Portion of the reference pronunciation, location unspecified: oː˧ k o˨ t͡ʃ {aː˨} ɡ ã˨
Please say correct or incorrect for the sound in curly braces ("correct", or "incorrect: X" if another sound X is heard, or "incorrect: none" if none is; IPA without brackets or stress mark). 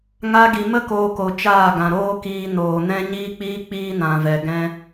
incorrect: aː˦˨